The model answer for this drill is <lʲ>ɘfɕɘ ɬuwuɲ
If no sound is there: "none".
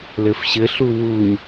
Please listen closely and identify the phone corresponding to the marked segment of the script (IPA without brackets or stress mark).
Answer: l